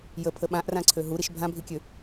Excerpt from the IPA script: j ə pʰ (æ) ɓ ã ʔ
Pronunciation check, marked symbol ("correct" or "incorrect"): incorrect